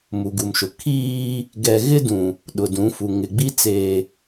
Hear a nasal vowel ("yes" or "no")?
yes